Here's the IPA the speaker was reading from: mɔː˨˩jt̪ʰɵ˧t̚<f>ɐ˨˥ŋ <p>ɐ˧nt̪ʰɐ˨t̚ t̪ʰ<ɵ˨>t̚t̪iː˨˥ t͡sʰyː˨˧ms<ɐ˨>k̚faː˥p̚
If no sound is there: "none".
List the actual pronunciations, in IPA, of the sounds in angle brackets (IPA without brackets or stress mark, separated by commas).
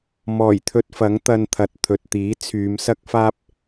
f, t̪, ɵ˨, ɐ˥